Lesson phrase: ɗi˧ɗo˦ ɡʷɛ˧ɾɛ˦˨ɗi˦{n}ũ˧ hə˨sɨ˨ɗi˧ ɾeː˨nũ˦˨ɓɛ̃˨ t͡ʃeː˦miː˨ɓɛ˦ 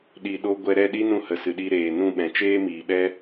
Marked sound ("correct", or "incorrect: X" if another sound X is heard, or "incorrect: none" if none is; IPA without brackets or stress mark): correct